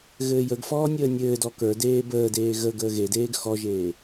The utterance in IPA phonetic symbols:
ɣ ɘː j ə ɡ f ɔː nʲ əː nʲ ɘː d ɔ k ə˞ d eː b əː d eː ɣ ə ɡ əː ɣ e d eː ɡ x ɔ ʒ eː

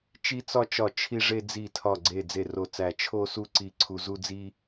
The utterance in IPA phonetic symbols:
t͡ʃ i˥ t͡s ɒ˥ t͡ʃ ɒ˦˨ t͡ʃʰ i˥ ʐ e˥ d͡z i˦˨ tʰ ɒ˦˨ ɡ͡ǀ e˦˨ d͡z e˦˨ r o˦˨ t͡s æ˦˨ t͡ʃʰ o˥ s u˥ ǀ i˥ ǀʰ u˥ z u˥ d͡z i˥

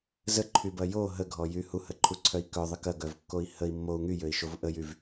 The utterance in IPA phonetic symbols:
z ə ǃʰ y b ɐ j o ɦ ə ɡʱ ɔ j y h u h ə ǃʰ u ǀʰ œ i̯ k œ ðˤ ə k ɐ ɡ œ v kː o i̯ h ə i̯ mː o u̯ ŋ y j ø i̯ ʃ o v ʔ ə j y v

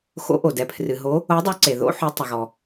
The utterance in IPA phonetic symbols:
x o̰˨˦ ʔ o˩ d ɛ˩ pʰ r ɨ˩ ɦ o˨˦ | o˨˦ dˤ u˨˦ ǀ e˩ ð o̰˨˦ ħ o˨˦ tˤ ɐ˩ ɣ ɔ˩

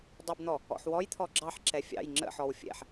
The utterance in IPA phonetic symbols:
dˤ ə b n̪ ɔ | ɔ̰ ħ w ɔ j t̪ʰ ɔ ɡ͡ǁ ɑ ħ ǁ ɛ fʲ ɑ̰ j ŋ͡ǁ ə̰ ħ ɔ w fʲ ɛ̰ ħ

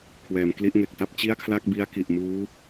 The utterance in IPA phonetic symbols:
kʰ w ɛː˩˦ m k l i˦˥ ʔ ŋ e˨˩ k̚ t a˥˩ p̚ t͡ɕ i˥˩ a̯ kʰ l a˥˩ k̚ b i˦˥ a̯ k i˨˩ ʔ m uː˦˥

